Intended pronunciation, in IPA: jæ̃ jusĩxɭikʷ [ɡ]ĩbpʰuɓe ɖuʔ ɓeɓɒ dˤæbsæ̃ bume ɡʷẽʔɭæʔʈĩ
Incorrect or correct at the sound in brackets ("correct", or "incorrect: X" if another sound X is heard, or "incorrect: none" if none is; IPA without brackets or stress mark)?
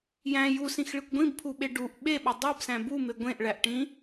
incorrect: ɡʷ